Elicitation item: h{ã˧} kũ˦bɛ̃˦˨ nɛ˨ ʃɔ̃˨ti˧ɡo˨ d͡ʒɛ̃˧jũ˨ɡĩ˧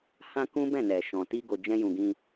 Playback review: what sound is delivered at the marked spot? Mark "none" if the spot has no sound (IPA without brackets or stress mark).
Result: ã˧